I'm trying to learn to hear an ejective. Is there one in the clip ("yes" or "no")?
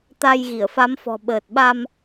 no